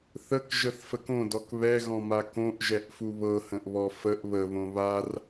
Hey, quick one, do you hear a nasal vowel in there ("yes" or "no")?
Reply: yes